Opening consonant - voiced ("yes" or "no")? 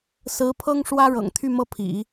no